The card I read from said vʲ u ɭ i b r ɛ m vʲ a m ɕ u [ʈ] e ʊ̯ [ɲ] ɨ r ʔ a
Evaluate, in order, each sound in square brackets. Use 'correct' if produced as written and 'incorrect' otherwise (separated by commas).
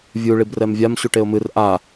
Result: correct, incorrect